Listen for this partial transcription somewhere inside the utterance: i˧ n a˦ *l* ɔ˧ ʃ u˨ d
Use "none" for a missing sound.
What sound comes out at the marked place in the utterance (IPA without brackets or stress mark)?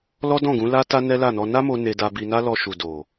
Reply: l